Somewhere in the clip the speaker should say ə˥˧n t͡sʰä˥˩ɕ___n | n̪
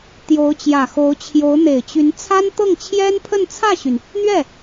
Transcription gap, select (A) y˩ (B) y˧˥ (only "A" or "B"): A